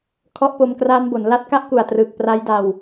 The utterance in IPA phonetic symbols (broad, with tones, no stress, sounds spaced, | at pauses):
kʰ ɔ˦˥ ʔ p o˧ m k r aː˦˥ n b o˩˦ n l a˦˥ t̚ k a˥˩ ʔ k u˨˩ a̯ t r ɯː˨˩ k̚ p r a˦˥ j d a˧ w